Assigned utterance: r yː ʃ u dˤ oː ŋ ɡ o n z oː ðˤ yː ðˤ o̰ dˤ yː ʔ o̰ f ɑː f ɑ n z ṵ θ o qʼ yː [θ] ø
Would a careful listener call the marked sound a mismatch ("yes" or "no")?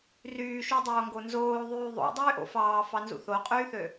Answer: no